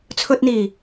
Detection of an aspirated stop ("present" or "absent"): present